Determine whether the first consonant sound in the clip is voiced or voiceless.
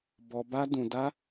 voiced